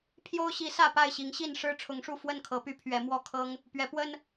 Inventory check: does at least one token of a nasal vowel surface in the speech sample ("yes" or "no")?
no